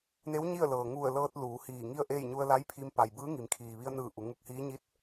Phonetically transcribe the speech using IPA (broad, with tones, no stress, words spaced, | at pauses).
ne˧˥w ɲi˥˨ə̯lɤː˩ ŋu˧˩ə̯lɤː˧t̚ luː˩˧hiː˧˩ŋi˥˨ə̯ʔe˥˨j ɲu˧ə̯la˧˥jpʰi˧m pa˩jbɯː˧˥ ŋi˩˧mkʰiː˩ ʋi˧ə̯nɯː˧˩ ʔu˩˧ŋu˧k̚hiː˧˥ ɲi˧˥t̚